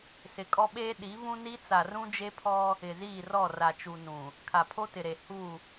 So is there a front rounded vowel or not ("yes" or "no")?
no